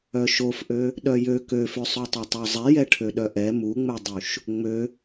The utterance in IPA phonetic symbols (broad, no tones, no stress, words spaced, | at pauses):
œʃofʔø | ɗœjø køfø sˤøtˤøtˤozˤɛ jɛʈʰøɗœʔɛ muŋ͡mɛdˤuʃ | ŋ͡mø